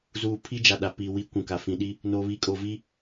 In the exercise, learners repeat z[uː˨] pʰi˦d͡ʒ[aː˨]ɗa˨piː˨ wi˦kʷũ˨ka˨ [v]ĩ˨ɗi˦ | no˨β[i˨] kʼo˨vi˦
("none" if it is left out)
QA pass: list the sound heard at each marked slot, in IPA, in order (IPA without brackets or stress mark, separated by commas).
uː˨, a˨, f, i˨